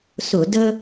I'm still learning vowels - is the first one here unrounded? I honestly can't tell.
no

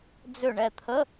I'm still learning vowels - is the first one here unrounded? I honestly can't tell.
no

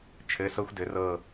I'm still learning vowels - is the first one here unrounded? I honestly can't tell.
yes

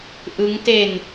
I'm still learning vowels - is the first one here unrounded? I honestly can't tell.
yes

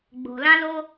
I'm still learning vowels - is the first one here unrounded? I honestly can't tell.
no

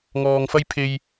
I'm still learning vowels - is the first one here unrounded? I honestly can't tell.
no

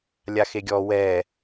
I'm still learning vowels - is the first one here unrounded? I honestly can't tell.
yes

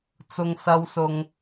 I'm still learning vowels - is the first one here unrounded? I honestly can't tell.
no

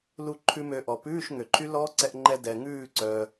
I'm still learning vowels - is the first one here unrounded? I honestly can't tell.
no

